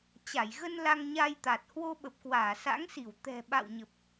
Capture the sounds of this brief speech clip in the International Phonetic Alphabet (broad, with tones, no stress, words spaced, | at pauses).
t͡ɕa˧˩jɣə˧n la˧ŋɲa˧jt̪a˨˩t̚ hwo˧ɓə˨˩p̚ kwaː˧˩sa̰˧˥ŋsi˧˩w t̪ɛ̤˨˩ɓa̰˧˨wɲə˨˩p̚